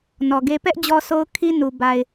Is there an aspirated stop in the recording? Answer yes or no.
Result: yes